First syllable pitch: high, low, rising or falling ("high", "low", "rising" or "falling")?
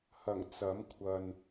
low